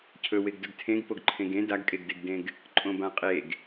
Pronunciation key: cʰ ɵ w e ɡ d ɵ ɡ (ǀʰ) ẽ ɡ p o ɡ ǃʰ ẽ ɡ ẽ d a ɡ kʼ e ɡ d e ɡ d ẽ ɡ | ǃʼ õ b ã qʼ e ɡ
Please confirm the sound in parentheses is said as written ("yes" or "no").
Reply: no